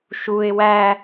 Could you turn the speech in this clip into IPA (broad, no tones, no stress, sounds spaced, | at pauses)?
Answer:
ʃ u ɪ̯ w æ